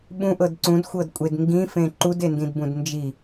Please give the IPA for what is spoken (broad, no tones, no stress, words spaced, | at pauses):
ɓũʔɤd ǀũdxʷɤdkʷʼed ŋɡĩfẽ ǃudendĩdbũd nd͡ʒi